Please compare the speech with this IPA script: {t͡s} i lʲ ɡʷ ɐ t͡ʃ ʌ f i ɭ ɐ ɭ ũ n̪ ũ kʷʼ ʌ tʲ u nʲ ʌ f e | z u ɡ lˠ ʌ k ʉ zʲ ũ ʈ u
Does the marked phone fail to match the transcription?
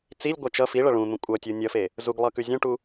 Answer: no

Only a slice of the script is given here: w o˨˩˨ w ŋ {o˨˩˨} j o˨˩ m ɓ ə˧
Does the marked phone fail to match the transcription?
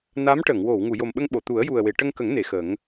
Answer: yes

